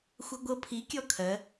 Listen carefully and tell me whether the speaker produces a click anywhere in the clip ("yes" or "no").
no